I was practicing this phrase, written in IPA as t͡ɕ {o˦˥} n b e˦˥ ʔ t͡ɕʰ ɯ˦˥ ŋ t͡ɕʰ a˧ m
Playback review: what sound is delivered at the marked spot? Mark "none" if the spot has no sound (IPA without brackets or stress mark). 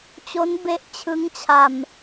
o˦˥